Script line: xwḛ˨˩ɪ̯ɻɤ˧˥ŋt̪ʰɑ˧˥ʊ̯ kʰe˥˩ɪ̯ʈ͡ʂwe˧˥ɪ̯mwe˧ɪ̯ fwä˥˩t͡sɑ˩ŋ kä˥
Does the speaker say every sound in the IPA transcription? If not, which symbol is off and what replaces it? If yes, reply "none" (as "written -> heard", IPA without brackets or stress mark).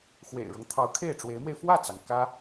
none